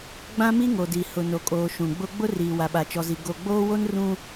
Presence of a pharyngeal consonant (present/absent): absent